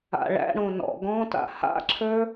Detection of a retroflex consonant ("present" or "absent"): present